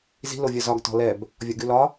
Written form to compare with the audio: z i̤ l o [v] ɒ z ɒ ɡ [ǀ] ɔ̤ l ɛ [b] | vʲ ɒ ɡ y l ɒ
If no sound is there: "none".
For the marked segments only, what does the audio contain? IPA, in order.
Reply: vʲ, t, b

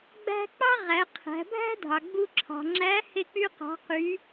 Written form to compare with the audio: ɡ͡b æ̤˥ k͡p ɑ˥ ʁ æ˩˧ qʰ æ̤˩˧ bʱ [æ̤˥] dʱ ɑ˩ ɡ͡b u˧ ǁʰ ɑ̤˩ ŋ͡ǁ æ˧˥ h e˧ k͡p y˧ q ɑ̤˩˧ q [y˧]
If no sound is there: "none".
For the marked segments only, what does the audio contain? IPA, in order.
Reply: æ̤˥, y˩˧

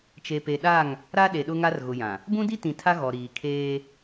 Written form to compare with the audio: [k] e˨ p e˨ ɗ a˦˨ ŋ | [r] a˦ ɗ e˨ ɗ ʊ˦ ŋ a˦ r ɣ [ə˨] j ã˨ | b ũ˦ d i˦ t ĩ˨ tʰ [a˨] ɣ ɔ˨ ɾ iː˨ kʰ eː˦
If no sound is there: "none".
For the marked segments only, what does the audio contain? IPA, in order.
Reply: t͡ʃ, ɾ, ʊ˨, a˦

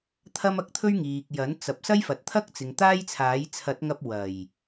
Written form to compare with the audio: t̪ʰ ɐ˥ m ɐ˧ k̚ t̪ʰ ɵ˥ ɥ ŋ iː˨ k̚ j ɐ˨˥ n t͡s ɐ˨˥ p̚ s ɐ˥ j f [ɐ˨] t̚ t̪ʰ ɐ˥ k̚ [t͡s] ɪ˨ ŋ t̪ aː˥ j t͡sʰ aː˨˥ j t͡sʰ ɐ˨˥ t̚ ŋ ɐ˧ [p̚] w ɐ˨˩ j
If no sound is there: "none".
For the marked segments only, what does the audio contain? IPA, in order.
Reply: ɐ˨, t͡s, p̚

